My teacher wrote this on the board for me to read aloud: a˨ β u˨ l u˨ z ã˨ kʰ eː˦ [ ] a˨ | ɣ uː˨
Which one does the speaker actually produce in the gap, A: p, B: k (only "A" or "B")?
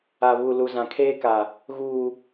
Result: B